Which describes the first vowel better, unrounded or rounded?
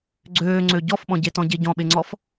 rounded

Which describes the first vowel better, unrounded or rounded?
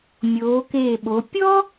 rounded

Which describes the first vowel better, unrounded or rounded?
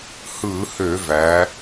unrounded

